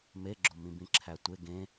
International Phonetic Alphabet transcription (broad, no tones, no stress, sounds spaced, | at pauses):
m e ɡ͡ǁ o m ĩ b ĩ ǁʰ æ tʷ e ɡ ẽ